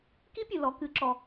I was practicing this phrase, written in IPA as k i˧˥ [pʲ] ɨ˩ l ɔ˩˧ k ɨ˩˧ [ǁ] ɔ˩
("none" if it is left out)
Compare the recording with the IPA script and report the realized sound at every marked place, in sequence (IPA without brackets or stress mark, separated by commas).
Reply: pʲ, ǁ